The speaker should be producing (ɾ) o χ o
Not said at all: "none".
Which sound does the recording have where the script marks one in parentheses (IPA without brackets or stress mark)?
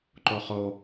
ǃ